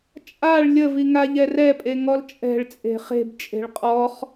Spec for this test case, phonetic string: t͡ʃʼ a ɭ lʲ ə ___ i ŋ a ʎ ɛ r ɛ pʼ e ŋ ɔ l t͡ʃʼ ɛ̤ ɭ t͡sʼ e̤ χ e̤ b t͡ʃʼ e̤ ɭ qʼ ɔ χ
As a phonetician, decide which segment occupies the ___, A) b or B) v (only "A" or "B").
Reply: B